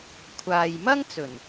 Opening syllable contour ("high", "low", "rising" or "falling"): low